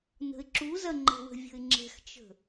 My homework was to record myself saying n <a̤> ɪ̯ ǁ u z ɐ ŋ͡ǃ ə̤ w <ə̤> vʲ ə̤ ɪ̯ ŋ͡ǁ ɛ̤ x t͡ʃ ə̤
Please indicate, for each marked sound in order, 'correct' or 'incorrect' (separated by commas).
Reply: incorrect, correct